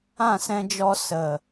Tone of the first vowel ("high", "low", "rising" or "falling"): falling